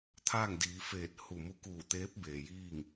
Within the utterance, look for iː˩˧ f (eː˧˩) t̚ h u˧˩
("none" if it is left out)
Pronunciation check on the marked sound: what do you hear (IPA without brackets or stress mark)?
eː˧˩